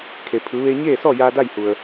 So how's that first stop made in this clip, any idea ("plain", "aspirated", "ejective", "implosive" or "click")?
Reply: aspirated